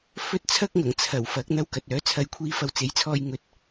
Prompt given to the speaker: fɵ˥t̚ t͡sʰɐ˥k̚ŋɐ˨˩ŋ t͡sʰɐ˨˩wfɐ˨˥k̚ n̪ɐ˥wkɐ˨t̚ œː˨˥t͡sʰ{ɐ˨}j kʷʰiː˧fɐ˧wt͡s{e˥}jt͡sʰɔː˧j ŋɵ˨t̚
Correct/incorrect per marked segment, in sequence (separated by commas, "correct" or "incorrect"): incorrect, incorrect